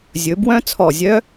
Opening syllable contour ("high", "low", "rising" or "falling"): rising